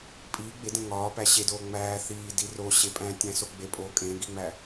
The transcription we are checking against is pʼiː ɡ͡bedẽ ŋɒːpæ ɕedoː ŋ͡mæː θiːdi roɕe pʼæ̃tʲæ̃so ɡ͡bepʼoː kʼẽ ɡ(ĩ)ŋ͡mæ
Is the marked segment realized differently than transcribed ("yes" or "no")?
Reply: yes